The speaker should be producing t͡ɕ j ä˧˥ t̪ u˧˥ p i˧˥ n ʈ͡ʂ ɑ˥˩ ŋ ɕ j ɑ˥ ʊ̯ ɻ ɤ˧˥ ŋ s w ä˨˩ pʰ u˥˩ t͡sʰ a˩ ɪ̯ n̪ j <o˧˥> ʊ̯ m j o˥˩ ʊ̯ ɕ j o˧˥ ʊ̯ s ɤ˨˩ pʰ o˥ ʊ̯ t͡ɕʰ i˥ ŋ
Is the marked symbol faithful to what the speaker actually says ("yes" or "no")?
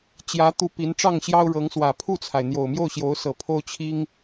no